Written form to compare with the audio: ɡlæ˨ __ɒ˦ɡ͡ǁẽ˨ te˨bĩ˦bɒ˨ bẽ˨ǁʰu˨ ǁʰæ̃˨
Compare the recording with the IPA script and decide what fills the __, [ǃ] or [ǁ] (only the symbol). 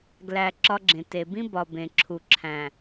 ǁ